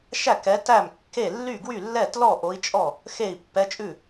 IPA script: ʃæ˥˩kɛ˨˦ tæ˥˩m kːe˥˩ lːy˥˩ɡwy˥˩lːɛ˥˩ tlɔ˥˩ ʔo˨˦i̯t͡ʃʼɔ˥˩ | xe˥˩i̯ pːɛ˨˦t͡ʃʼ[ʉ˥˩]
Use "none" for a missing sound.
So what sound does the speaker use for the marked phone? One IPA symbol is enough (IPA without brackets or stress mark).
ʉ˥˩